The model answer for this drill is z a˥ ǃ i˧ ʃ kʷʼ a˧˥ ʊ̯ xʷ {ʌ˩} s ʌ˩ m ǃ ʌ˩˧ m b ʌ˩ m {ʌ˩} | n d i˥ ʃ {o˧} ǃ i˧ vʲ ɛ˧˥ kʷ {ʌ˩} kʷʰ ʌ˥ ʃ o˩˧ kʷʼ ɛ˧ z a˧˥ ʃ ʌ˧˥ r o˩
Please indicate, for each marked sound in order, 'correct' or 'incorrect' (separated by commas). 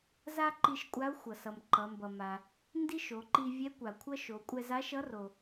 correct, incorrect, incorrect, incorrect